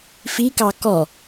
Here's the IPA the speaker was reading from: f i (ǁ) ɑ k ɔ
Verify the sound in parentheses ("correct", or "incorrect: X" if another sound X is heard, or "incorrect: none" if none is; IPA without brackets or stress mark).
incorrect: k